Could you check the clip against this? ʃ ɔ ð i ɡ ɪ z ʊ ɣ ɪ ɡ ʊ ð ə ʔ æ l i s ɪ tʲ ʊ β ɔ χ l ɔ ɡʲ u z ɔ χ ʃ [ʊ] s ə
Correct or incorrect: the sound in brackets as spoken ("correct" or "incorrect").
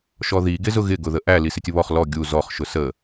correct